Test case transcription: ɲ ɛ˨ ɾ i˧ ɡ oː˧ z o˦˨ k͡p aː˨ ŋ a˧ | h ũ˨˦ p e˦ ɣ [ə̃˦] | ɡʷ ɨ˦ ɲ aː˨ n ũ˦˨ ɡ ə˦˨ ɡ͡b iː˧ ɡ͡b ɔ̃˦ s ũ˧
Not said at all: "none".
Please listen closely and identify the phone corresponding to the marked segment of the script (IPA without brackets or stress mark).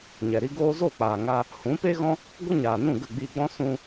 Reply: ɔ̃˦